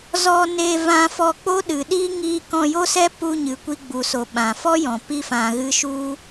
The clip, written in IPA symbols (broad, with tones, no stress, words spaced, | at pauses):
zɔ˧ne˧vã˧fɔ˧ k͡po˦ɗɨ˨ɗi˦ ŋi˦ kɔ̃˧jo˦sɛ˦pu˧ ɲɨ˨kʷi˧ɡ͡bu˨ so˨ɓã˨fɔ˦jɔ̃˨ pi˧fã˨ɣɨ˧ʃu˦